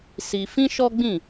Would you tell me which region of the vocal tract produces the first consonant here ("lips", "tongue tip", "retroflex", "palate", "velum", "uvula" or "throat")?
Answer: tongue tip